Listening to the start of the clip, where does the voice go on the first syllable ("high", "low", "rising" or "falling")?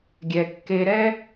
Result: low